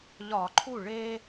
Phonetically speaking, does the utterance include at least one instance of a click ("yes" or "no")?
yes